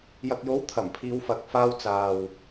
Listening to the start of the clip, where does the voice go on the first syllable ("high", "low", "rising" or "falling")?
low